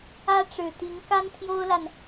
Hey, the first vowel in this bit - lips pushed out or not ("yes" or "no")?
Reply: no